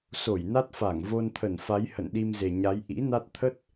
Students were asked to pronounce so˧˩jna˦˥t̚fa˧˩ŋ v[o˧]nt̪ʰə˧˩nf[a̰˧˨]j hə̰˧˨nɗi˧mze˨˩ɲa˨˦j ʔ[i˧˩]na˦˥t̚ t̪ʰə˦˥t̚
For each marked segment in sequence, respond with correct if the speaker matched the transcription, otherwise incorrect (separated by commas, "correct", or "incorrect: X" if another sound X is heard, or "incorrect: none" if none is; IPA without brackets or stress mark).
correct, incorrect: a˨˦, incorrect: ḭ˧˥